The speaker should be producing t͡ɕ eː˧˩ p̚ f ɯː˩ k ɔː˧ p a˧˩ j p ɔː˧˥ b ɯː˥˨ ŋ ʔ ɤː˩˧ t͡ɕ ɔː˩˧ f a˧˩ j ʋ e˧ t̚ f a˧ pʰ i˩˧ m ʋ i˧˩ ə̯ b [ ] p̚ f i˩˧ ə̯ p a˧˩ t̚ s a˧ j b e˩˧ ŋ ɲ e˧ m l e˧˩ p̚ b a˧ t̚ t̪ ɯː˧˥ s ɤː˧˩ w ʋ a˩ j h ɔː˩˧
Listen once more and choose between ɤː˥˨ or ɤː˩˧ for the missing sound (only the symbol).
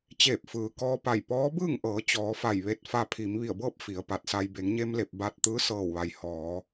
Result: ɤː˥˨